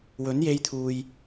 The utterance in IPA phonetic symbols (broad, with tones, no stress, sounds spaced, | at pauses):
w ɵ˨˥ n j e˧ j t̪ʰ uː˨ j